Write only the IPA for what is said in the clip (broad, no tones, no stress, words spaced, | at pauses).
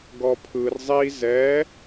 ɡɔpʰɯr zˤi zɛ